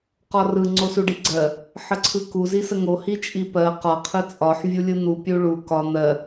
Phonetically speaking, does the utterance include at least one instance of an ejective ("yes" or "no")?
yes